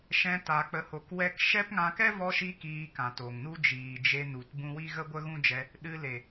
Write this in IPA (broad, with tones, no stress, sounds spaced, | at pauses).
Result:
ʃ ɛ̃˧ t a˨ k͡p ə˨ h o˨ k w ɛ˧ k ʃ ɛ˦ p ŋ ã˧ k ɛ˦ v ɔ˧ ʃ i˧ k iː˧ k ã˨ t o˨ ŋ n u˦ d͡ʒ iː˨ d͡ʒ e˧ n u˨ t b ũ˧ w i˦ ɣ ə˦ ɡʷ ə˦ ɣ ũ˦ d͡ʒ ɛ˧ | ɗ ɨ˧ l e˨